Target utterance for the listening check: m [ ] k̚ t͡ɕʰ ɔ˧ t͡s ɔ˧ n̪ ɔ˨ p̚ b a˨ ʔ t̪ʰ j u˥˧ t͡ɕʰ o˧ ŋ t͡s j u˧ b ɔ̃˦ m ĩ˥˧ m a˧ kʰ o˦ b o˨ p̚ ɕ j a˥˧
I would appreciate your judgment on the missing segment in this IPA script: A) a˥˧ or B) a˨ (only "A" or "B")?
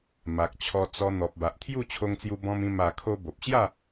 B